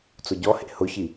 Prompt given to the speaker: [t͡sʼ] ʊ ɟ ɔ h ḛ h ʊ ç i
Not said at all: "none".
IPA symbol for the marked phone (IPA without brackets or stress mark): t͡s